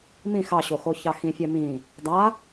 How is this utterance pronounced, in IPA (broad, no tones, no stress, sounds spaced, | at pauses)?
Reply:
m ĩ x ɑ ɕ o x o ç ɑ x ĩ fʲ ɛ m ĩ | dˤ a